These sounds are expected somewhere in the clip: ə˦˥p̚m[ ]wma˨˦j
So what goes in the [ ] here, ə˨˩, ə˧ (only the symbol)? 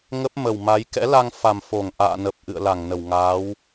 ə˨˩